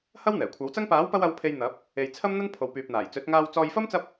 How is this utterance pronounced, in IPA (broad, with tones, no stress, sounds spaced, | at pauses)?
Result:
h ɐ˥ w n̪ ɛː˨˩ kʷʰ ɐ˨˥ w t͡s ɐ˥ ŋ p aː˨˥ w p ɐ˧ w ɐ˨˧ w pʰ e˨ j n̪ ɐ˨˥ p̚ | e˨ j t͡sʰ ɐ˥ m n̪ ɐ˥ n pʰ o˨ w p yː˨ p̚ n̪ aː˨˩ j t͡s ɵ˨˥ t̚ ŋ aː˧ w t͡s ɔː˧ j f ɐ˥ m t͡s ɐ˥ p̚